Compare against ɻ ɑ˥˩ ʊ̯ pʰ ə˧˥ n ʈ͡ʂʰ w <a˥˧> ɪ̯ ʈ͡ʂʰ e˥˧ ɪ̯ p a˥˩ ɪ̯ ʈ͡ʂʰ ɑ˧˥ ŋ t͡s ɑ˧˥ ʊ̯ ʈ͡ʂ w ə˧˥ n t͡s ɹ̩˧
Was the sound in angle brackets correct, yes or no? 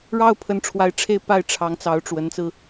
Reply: no